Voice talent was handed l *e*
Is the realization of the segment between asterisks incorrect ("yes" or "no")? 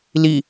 yes